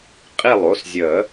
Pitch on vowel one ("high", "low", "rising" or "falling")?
falling